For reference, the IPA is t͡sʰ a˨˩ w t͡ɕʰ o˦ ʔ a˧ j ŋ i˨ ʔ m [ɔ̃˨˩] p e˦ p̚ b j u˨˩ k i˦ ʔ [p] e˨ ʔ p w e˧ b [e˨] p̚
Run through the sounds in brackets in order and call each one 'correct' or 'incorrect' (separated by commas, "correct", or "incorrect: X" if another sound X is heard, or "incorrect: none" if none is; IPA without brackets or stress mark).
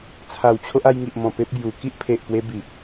correct, incorrect: pʰ, incorrect: i˨